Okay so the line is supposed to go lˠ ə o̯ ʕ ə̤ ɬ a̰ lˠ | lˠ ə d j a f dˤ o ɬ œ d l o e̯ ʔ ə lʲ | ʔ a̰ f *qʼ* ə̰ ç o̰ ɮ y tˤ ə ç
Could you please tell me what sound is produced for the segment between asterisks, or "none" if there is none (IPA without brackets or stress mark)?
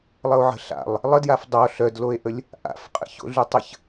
qʼ